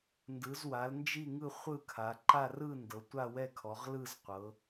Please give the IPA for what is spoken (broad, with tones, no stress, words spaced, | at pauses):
ndɯ˩˧zwa˩˧l nd͡ʒi˥˧ŋɯ˥˧ χʷɯ˥˧kʰa˩˧ ǃa˥˧rɯ˥˧ ndɤ˩˧tʷa˥˧wɛ˥˧kʰɔ˩˧ʁ lɯ˥˧z qʷɤ˩˧